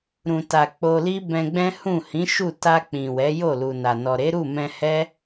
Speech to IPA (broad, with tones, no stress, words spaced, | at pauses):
ɾũ˨ta˨ k͡po˧li˦bɛ̃˧ɡ͡bɛ̃˦ hũ˦˨ hĩ˨˦ ʃu˦˨ ta˧k͡pĩ˨ wɛ˨˦ jo˦˨lu˨na˨ nɔ˨ɾe˨˦ɾu˦˨ mɛ̃˧hɛ˦